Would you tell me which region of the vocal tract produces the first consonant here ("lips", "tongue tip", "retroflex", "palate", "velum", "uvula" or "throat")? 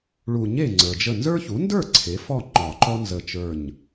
retroflex